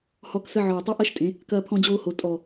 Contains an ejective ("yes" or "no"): yes